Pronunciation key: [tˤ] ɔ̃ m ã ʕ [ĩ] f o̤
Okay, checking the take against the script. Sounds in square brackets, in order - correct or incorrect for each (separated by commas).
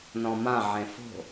incorrect, incorrect